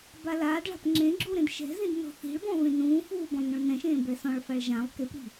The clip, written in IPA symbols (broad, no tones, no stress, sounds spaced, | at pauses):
b a l aː d ɭ a̤ p ŋ͡ǁ ẽ ɡ͡ǁ u ɾ ẽ d ʃ ɛ̤ z ĩ d n ɔ̤ θ i̤ ɭ b ɔ̃ v ẽ n ũː f uː b ɔ̃ lˠ n ũ ɭ n ɛ̃ ʃ ẽː b ɛ s ɔ̃ ɭ f a ɭ ʒ ã lˠ k e p ɾ i̤